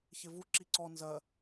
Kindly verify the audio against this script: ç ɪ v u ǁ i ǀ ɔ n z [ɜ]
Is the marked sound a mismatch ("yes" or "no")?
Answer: no